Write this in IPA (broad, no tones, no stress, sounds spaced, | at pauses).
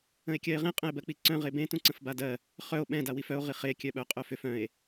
ə̃ e̯ kʲ ɜ e̯ ʁ ẽ qʼ ə̃ e̯ b ɜ k͡p i ǀ œ̃ ʁ e b ẽ t ũ ǀ ə̃ f b a d ɜ | χ œ o̯ ɓ ɛ̃ d a w i f œ o̯ ʁ i χ e kʲ œ ɓ œ qʼ œ f ʏ f œ̃ e̯